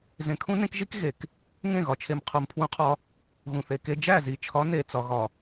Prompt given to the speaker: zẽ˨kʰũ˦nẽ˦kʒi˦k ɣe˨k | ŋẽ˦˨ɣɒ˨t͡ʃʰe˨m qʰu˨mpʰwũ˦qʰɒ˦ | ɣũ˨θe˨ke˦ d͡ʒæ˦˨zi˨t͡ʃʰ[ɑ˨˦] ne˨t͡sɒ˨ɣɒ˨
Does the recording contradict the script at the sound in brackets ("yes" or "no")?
yes